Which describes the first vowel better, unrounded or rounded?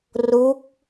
rounded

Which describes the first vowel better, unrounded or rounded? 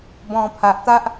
rounded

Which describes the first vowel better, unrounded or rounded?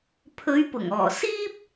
rounded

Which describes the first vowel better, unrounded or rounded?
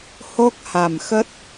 rounded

